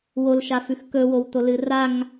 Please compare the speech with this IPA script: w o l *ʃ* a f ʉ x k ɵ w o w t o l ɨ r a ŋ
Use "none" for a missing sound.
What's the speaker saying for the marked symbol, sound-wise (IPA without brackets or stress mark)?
ʃ